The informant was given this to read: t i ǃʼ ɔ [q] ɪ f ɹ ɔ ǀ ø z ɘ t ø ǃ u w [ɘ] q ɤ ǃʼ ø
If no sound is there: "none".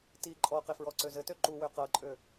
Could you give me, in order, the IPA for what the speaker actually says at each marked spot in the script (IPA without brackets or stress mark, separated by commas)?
q, ø